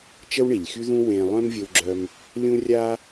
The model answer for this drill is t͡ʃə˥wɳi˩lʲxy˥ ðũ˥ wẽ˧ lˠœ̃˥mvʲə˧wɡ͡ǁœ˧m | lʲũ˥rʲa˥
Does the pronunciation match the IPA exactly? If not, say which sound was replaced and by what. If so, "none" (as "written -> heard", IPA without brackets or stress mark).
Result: none